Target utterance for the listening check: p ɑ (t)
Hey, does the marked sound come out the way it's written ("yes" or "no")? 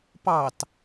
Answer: yes